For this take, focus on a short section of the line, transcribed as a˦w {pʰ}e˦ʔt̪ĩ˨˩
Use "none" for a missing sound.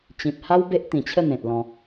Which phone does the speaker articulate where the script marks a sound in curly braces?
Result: b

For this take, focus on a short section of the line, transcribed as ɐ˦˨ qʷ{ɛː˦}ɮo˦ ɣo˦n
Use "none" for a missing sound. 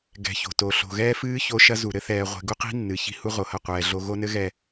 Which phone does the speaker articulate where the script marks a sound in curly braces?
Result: ɛː˨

